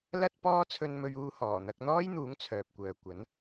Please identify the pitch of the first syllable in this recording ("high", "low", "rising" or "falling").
high